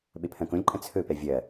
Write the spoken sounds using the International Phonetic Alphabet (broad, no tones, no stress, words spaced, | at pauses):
ɓepʰɐ̃kõlʲǃʼɐ̃ t͡sʰɵpɛ vʲɐ